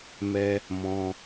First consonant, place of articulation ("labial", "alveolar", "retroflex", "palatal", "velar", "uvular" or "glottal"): labial